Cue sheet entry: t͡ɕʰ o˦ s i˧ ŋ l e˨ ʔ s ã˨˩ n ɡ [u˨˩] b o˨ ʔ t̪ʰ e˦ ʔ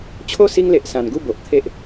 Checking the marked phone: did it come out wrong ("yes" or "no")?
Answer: yes